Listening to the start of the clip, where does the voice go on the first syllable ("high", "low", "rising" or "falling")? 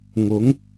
rising